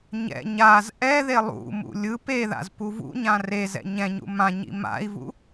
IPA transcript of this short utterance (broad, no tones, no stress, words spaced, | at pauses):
ɲɛ̰ ɲaz ʔɛðe lˠṵmṵ lʲɯ peða̰z puvṵɲã rezɛ̰ ɲɛ̃ɲṵ mã ɲḭma̰i̯vṵ